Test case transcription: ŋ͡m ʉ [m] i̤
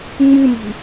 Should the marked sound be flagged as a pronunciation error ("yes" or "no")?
no